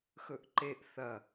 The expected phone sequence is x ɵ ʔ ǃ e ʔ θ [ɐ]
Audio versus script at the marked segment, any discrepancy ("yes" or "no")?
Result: no